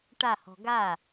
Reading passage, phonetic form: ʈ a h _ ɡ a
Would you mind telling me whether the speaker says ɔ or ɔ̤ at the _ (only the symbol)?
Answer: ɔ̤